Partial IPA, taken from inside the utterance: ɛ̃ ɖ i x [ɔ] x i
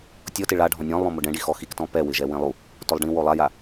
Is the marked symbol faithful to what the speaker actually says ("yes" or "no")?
yes